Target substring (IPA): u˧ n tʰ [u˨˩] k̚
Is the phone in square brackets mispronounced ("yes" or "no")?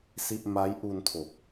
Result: yes